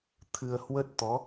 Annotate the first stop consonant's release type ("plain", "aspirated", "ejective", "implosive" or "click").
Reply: aspirated